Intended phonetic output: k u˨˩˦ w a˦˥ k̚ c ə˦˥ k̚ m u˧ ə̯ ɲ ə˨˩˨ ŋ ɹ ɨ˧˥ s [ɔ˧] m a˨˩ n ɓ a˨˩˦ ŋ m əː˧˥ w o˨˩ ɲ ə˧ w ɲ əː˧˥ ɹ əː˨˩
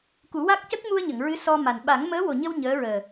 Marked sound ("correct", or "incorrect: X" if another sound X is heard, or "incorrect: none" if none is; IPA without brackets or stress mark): correct